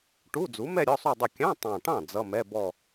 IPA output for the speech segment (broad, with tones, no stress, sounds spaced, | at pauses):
ʈ u˧˥˧ d͡z u˩˥ m ɛ˥˧ ɾʲ ɔ˧˥˧ sˤ u˥˧ dˤ ʊ˥˩ kʲ ɑ̃˧˥˧ tˤ ɑ̃˨˩ ʈ ɑ̃˥˩ d͡z ʌ˧˥˧ m ɛ˧˥˧ b ɔ˥˧